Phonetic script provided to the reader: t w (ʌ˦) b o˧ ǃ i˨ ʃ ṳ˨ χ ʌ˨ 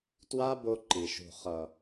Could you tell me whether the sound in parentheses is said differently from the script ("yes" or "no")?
yes